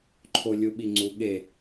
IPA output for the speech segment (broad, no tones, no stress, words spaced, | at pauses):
ǃʰolʲuɓiŋ͡ǀu ɠe